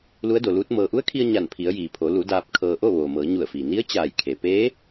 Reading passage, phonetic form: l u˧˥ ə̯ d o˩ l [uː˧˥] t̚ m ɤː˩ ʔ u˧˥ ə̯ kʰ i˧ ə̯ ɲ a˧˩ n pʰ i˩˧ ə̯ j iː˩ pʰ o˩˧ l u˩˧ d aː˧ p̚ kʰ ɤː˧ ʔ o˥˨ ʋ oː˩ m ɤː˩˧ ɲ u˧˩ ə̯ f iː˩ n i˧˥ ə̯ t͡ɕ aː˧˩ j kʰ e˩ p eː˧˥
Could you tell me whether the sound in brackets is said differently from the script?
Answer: no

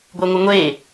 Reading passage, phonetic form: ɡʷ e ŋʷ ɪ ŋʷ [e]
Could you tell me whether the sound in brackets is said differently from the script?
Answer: no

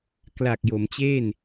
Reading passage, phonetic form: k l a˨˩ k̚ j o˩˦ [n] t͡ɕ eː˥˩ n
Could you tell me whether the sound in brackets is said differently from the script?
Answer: yes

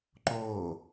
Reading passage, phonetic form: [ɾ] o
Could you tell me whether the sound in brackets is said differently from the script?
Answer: yes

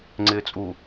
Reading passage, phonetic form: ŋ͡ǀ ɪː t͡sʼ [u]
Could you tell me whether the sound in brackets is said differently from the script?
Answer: no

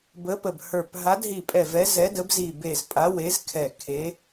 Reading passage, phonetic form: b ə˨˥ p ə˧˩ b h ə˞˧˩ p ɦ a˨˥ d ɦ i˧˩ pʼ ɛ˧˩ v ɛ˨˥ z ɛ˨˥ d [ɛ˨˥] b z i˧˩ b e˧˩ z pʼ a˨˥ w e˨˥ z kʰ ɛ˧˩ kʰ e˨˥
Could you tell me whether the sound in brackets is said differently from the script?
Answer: yes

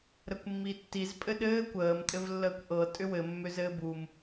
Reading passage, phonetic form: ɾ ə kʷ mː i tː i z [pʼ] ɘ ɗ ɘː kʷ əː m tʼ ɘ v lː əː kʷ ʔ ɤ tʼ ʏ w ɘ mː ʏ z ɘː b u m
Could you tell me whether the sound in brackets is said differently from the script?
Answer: no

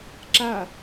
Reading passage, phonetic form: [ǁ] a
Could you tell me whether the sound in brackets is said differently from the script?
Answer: no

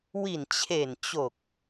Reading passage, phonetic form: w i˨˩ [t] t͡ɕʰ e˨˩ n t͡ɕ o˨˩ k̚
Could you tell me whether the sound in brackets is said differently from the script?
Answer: yes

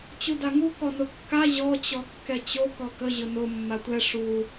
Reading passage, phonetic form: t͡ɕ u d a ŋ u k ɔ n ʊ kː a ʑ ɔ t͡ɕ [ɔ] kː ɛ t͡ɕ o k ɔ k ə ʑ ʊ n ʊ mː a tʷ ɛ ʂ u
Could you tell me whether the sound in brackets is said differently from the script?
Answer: no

